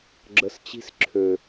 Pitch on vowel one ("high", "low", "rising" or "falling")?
low